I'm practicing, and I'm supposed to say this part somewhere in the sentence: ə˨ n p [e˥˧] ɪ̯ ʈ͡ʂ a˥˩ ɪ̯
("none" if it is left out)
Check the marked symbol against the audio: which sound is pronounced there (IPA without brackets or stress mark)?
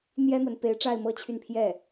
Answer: e˧˥